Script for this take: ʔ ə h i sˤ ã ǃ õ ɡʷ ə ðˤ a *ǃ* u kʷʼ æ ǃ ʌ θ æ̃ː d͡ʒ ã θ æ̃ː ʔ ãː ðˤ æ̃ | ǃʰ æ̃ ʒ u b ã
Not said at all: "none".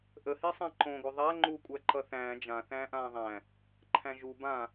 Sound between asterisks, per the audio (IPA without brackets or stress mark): ŋ͡ǃ